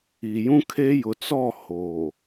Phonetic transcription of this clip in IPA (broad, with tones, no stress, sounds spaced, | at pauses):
i˨ j ũ˦ kʰ e˦ j ʊ˨ t͡s ɔ˦˨ h oː˨